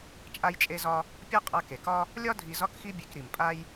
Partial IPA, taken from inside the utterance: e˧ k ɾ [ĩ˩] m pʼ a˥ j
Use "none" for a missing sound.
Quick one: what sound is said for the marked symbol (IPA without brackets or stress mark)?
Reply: i˩